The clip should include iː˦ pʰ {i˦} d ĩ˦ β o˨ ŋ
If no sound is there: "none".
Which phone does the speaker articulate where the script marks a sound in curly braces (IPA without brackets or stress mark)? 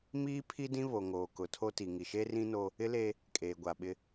i˦